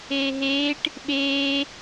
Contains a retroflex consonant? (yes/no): yes